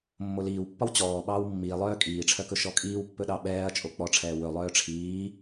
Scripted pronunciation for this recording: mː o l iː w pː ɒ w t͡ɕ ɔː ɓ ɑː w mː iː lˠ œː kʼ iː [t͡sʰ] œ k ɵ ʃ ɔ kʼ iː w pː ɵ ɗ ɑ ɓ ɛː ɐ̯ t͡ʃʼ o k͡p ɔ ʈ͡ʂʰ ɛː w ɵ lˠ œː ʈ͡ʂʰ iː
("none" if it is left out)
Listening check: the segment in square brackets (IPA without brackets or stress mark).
ʈ͡ʂʰ